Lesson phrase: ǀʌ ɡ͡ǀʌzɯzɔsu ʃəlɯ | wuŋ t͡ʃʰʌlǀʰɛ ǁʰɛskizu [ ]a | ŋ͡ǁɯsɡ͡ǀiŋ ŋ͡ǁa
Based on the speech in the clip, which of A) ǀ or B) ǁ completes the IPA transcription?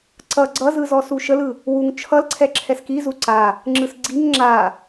A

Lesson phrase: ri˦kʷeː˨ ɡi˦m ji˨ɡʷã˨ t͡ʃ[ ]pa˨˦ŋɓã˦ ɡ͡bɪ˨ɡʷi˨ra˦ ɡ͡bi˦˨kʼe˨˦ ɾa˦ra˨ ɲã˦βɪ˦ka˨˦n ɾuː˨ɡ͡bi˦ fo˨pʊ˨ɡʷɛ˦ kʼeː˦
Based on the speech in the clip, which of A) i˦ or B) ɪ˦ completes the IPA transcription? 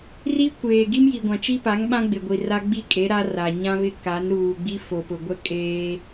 A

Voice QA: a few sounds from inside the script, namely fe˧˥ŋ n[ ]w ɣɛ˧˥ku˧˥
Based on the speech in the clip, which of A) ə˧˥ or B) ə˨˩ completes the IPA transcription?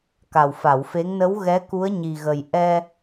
A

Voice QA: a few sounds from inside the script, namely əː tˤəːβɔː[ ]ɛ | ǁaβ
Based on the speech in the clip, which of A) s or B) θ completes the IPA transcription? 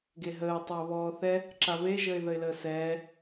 B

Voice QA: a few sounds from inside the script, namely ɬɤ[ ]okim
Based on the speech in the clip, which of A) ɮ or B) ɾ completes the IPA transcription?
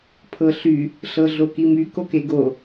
A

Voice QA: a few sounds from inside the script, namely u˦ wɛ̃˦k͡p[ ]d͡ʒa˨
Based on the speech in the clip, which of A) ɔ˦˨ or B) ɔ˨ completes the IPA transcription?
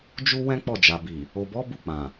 A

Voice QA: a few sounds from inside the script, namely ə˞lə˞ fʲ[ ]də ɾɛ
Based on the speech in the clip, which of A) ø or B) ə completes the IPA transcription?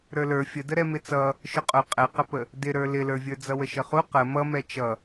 B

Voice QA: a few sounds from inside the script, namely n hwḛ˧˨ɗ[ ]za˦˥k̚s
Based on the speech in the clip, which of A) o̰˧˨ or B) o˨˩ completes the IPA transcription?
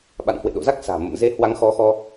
A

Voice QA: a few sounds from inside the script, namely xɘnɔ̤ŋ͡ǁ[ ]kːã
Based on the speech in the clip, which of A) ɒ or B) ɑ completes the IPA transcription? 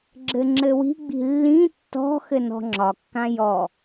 A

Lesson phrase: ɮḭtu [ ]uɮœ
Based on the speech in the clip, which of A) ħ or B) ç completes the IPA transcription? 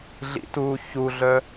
B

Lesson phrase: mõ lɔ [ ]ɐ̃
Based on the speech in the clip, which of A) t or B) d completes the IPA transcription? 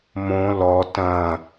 A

